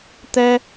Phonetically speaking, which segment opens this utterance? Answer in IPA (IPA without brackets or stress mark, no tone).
t̪